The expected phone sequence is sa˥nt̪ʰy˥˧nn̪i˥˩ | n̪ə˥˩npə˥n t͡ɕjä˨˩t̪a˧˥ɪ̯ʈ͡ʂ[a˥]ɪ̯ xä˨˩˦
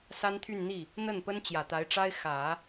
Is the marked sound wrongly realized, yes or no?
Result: no